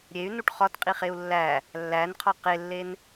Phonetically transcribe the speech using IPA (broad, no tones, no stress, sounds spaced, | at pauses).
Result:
ɾʲ e y̯ n u ʈ χ ɒ t qʼ i χ e u̯ lː æ | lː æ n qʰ ɒ q e lː e n